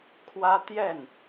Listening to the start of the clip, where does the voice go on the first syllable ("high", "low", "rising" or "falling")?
high